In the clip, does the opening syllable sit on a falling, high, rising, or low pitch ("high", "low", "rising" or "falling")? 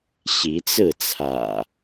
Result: rising